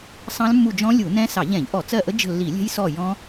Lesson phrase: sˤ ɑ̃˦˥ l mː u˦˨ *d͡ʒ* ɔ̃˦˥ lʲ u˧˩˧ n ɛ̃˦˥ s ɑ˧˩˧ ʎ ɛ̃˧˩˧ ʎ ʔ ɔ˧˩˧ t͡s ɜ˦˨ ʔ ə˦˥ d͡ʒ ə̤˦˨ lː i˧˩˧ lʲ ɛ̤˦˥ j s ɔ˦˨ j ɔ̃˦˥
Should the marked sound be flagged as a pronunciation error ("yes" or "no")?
no